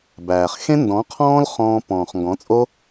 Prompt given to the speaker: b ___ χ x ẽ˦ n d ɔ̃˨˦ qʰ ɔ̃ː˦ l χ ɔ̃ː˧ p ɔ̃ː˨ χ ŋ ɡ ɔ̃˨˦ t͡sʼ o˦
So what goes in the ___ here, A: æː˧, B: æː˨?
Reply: B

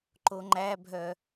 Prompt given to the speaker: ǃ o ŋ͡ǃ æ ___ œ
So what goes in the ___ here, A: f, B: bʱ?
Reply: B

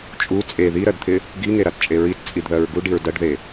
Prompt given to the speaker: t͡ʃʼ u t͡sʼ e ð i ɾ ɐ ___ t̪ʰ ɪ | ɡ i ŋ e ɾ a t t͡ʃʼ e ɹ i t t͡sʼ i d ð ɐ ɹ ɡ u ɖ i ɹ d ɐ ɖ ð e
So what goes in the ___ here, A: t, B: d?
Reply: B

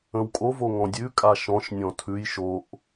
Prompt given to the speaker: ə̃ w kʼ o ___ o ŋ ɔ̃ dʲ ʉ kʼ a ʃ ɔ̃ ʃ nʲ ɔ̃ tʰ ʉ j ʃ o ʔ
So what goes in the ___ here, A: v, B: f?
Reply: A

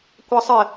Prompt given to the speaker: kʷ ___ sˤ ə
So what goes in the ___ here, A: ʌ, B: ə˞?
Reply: A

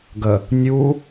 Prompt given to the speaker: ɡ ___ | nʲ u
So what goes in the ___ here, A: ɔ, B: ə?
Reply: B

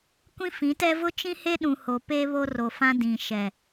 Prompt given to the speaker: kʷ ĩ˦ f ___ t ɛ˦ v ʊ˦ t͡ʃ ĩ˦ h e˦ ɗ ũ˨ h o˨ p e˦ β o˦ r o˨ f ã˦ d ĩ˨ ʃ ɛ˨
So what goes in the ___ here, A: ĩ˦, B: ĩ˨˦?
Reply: B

